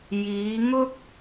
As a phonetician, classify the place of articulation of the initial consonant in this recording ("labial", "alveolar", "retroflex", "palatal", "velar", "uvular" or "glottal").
palatal